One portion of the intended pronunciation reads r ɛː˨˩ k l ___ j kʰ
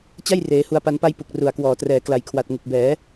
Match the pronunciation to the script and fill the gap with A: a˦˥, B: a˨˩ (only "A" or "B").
B